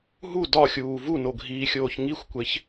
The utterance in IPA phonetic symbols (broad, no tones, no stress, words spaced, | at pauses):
ɦu dɒxʲuː vunoɡʱiːxʲoːç ŋixʷkʷeç